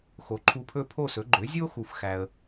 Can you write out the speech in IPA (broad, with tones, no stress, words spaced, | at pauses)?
xo˩˥ǃʰu˧pʰɵ˥˩ pʰo˥˩sɵ˩˥ ɡ͡ǃø˩˥zʲo˥ xu˧fxæ˧ə̯